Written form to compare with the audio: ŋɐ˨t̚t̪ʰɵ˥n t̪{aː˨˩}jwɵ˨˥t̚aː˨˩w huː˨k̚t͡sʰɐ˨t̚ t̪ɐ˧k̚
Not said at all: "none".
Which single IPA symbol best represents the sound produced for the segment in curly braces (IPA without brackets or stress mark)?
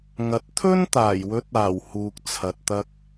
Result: aː˨˩